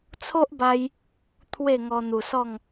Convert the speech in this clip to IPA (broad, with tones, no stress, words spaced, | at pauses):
t͡sʰo˦ʔba˧j | t̪ʰwe˥˧ŋɔ˧n̪u˨˩ sɔ˥˧ŋ